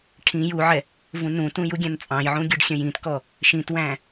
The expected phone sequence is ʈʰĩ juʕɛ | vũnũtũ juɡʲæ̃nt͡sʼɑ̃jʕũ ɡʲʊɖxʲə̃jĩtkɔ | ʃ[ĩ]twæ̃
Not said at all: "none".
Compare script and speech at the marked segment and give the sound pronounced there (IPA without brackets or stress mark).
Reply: ĩ